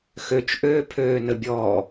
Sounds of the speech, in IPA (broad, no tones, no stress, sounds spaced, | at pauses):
x ø t͡ʃ ʔ øː pʰ øː n ə bʲ ɔː